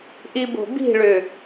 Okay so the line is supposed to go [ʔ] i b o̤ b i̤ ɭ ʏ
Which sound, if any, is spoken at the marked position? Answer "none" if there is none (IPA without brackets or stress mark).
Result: ʔ